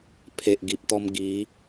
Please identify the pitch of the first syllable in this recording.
low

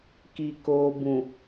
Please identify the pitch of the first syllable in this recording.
low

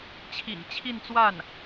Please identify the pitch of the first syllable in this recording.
low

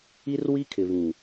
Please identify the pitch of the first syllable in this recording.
high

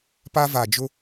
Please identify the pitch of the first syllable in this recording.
high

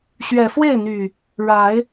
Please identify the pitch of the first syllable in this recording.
low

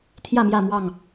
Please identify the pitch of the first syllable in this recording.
falling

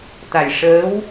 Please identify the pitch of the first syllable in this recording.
low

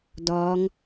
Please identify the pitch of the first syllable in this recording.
rising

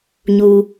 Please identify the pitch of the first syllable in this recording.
high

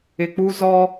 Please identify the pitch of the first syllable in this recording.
low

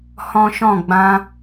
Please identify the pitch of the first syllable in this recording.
high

